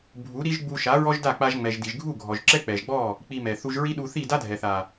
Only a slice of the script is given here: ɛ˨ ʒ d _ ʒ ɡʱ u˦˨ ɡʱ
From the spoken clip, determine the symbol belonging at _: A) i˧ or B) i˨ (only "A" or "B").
B